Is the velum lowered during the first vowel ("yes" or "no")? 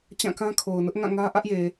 yes